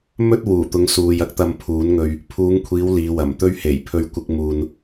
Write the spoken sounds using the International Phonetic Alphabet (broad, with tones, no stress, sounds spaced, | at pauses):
m ɵ˥ t̚ w uː˨˩ t̪ ʊ˨˧ ŋ s uː˨ j ɐ˥ k̚ t̪ ɐ˧ m pʰ uː˨˥ n ŋ ɵ˧ ɥ | pʰ uː˨˧ ŋ kʷʰ iː˨˧ w l iː˨˧ w ɐ˨˩ m t̪ ɵ˧ ɥ h e˨˩ j pʰ ɵ˧ ɥ kʷ ɪ˧ k̚ m uː˨ n